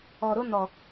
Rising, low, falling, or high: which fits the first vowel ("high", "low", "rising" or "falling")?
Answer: low